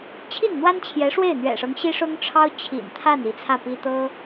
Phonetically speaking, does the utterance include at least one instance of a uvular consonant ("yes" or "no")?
no